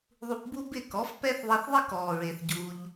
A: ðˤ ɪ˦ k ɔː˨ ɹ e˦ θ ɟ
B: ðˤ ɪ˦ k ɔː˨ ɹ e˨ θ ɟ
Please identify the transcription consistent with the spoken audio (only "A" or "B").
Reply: B